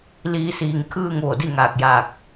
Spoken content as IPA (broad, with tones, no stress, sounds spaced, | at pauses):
l iː˧ s iː˧˩ ŋ kʰ ɯː˥˨ ŋ ʋ o˧˩ d i˥˨ ŋ aː˧˩ k̚ j aː˧˩ k̚